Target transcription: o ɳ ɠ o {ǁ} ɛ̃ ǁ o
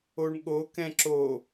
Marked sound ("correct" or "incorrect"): incorrect